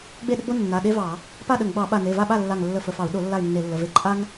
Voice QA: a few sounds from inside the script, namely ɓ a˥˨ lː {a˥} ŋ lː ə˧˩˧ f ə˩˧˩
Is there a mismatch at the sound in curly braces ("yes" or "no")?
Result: yes